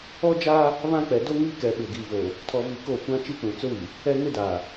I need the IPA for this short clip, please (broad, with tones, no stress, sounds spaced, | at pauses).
ɔ˦ d͡ʒ aː˦ | β ã˦ k͡p ɛ˨ d o˦ ŋ iː˦ k ɛ˨ ɓ ɪ˨ ɡ iː˨ v o˨ | tʰ ɔ˨ v i˨ k o˦˨ kʷ ã˦ t͡ʃ i˦ k͡p ũ˨ t͡s ʊ˦ w i˨ | ɛ˦ ŋ ɪ˦ d aː˨